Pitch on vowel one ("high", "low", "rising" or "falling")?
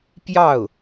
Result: falling